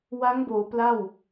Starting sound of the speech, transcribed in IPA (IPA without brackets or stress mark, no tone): w